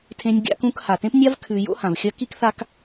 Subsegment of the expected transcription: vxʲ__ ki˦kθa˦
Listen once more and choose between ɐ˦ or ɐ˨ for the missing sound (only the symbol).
ɐ˦